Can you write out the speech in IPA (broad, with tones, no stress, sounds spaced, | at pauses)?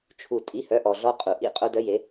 t͡ʃʰ u˩ tʼ i˩˧˩ h œ˩˧ ʔ ɔ˩ ɮ ɔ˧ qʼ u˩ ʔ ḭ˩˧˩ qʼ o˧ d œ˧ j e˩˧